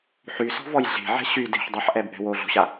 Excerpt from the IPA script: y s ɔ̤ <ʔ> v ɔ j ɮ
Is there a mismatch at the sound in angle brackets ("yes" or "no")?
yes